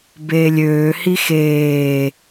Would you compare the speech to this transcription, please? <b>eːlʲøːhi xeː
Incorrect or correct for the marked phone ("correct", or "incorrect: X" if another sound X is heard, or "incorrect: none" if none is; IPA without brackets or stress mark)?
correct